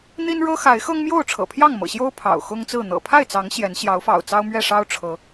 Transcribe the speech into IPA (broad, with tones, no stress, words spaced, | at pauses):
n̪i˦nɻɤ˦ xa˨˦ɪ̯xɤ˦ŋmjo˥˨ʊ̯ ʈ͡ʂʰɤ̰˨˩pʰjɑ˥˨ŋmɤ̰˨˩ɕjo˦ʊ̯ pʰɑ̰˨˩ʊ̯ xʊ˦ŋt͡sɹ̩˥˨ n̪ɤ̰˨˩pʰa˥˨ɪ̯t͡sɑ˨˦ŋ ɕjɛ˨˦n ɕjɑ˨˦ʊ̯fɑ̰˨˩ʊ̯ t͡sɑ˦ʊ̯mɥɛ˥˨ʂɑ˦ʊ̯ ʈ͡ʂʰɤ˨˦